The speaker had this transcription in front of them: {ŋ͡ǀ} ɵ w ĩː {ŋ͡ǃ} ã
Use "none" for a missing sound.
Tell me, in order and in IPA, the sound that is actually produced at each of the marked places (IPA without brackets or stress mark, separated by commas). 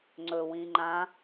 ŋ͡ǀ, ŋ͡ǃ